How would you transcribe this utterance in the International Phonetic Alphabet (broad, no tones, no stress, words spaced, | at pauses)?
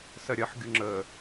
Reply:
sɜɾʲɜħ ɡʲuŋ͡ǁə